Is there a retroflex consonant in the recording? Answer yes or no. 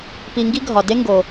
no